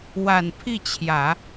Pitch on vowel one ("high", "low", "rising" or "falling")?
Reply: low